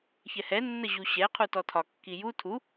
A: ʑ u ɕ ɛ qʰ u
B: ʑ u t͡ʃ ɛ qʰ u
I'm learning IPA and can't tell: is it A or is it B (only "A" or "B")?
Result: A